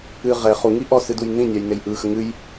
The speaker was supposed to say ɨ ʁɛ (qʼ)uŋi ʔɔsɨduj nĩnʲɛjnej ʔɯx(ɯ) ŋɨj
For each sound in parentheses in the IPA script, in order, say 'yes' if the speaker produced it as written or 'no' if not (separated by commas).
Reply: no, no